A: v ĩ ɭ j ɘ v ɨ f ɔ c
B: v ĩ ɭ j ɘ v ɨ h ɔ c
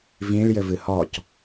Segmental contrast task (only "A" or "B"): B